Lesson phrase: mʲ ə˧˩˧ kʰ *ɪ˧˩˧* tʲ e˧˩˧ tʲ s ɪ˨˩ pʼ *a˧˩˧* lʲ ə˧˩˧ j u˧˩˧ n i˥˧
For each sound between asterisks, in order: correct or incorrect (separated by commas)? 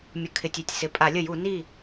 correct, correct